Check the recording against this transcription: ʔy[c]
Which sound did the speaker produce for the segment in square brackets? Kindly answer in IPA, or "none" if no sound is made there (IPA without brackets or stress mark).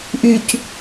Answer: c